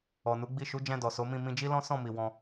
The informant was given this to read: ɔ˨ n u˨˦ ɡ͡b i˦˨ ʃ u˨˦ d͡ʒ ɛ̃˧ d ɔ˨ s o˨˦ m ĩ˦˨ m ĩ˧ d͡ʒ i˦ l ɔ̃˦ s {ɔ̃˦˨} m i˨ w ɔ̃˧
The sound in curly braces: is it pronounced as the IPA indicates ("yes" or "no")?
yes